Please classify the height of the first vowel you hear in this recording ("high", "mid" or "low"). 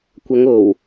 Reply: low